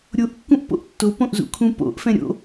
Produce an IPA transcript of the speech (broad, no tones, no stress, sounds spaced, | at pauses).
ɾʲ o ʔ kː ũ ʔ p o̰ ʔ tː o p õ ʔ z ṵ kʰ ũ p o̰ ʔ f ɛ̃ ɾʲ o̰